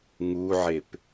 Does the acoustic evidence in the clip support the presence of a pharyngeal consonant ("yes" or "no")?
yes